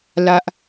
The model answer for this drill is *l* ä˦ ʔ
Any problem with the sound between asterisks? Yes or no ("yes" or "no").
no